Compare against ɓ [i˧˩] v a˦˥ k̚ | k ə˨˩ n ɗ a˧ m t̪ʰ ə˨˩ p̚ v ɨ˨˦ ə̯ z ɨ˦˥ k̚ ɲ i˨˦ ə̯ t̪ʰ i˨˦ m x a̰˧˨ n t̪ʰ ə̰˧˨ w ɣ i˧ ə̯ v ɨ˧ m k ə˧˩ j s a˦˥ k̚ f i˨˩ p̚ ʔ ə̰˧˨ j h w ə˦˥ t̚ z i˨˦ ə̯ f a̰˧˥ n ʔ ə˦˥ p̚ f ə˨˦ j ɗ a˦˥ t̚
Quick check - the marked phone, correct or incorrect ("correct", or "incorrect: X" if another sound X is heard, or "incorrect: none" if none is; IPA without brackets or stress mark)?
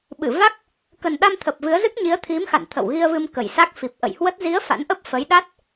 incorrect: ɨ˧˩